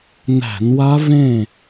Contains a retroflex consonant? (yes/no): no